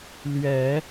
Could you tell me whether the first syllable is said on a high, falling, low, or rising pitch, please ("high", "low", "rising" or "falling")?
low